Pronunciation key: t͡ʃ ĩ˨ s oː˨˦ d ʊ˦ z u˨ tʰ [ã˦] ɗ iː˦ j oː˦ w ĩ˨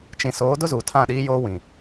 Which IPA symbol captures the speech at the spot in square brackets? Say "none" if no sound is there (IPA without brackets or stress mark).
ã˦˨